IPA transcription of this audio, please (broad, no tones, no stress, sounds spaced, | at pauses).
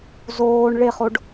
z oː ɳ ɭ e χ o ɖ